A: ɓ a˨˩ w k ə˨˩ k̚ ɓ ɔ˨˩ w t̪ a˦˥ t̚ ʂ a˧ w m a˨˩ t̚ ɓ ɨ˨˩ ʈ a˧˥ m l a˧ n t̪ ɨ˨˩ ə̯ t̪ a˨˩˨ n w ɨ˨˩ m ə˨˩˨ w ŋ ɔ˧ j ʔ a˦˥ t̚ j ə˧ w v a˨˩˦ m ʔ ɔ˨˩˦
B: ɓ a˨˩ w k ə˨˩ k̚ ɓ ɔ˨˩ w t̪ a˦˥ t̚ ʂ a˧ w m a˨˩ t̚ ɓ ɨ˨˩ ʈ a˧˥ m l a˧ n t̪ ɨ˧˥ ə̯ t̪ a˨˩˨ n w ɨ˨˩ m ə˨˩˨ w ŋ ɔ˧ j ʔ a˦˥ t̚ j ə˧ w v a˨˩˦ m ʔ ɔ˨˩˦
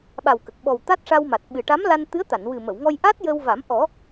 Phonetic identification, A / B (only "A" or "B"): B